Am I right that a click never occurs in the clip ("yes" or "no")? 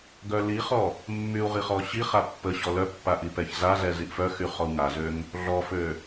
yes